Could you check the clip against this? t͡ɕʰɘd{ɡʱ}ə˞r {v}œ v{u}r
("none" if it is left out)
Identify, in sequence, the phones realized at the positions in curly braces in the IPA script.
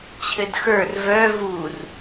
x, v, u

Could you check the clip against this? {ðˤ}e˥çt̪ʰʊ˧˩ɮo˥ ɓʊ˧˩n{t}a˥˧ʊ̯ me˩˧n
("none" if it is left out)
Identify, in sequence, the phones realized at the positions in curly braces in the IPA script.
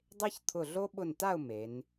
dˤ, t

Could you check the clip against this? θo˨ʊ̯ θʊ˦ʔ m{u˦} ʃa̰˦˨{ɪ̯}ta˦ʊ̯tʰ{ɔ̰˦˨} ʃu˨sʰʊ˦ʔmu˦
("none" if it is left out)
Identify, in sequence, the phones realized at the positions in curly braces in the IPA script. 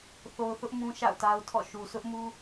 ũ˦, ʊ̯, ɔ̰˦˨

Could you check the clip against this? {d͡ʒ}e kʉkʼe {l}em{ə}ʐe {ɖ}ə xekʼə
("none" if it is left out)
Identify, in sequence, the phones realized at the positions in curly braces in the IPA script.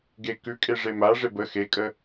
ɡ, ʐ, a, b

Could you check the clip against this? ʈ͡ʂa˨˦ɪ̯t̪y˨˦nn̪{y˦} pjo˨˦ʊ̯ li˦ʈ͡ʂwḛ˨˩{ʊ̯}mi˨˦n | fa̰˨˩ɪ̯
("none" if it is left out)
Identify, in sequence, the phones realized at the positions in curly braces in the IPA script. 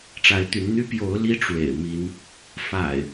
y˦, ɪ̯

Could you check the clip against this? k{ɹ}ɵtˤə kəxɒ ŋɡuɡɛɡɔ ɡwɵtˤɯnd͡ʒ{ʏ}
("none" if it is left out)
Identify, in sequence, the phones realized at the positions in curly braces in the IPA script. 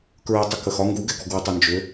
ɹ, ʏ

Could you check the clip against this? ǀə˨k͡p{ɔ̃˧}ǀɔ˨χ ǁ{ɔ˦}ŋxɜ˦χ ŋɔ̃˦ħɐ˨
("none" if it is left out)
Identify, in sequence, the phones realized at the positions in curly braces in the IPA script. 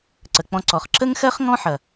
ɔ̃˧, ə˦

